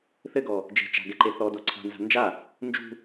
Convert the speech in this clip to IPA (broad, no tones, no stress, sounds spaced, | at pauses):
θ ɘ ɡ ɔ | d͡ʒ e̤ t͡ʃ a̤ ɡ ɛ ǃ e θ ɔ d o ǀʰ a̤ n z a̤ n d͡ʒ a | n d͡ʒ ṳ